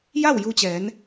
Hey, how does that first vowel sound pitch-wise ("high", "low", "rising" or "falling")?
falling